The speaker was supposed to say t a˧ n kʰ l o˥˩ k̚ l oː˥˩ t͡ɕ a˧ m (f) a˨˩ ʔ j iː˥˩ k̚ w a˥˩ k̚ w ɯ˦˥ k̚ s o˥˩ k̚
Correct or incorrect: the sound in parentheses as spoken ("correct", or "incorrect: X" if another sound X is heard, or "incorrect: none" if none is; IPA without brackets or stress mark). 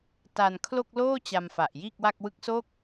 correct